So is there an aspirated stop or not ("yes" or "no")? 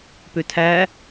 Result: yes